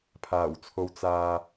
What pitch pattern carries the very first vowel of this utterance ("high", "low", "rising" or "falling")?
low